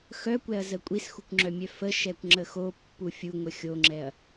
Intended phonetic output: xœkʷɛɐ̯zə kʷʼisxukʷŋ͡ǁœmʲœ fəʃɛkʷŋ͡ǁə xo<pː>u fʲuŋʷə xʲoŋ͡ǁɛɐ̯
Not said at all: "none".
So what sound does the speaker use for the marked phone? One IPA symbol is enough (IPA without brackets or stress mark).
pː